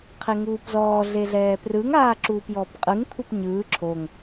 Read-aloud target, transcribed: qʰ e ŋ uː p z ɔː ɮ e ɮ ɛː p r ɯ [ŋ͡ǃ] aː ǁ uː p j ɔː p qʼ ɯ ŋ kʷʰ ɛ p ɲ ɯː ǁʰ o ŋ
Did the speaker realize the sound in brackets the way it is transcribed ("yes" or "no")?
no